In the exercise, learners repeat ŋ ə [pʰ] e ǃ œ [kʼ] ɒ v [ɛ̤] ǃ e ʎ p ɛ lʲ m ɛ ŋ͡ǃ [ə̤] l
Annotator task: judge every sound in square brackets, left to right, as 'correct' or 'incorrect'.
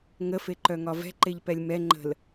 incorrect: f, incorrect: ŋ, correct, correct

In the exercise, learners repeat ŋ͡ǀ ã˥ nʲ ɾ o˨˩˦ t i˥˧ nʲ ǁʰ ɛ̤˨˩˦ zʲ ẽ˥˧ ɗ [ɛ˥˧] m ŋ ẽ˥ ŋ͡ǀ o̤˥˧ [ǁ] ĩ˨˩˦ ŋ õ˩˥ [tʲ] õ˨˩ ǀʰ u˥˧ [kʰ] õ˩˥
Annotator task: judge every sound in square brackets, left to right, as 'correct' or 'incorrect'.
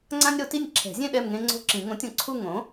correct, correct, correct, incorrect: ŋ

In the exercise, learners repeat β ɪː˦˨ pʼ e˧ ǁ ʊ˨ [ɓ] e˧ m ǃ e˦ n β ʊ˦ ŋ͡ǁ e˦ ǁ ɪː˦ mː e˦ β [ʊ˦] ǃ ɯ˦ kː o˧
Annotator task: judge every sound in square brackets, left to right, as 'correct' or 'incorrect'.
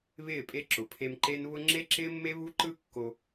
incorrect: pʰ, incorrect: u˦

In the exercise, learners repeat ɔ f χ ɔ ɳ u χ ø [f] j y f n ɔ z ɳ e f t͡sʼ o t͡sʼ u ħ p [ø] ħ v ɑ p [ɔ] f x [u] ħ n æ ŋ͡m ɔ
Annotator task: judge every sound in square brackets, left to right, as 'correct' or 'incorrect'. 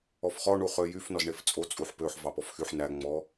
incorrect: none, correct, correct, incorrect: y

